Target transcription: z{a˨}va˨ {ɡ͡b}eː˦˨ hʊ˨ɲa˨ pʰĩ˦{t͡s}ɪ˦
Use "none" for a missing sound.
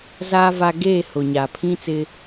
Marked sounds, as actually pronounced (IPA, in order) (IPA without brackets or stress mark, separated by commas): aː˨, ɡ, t͡s